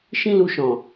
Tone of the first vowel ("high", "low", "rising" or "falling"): high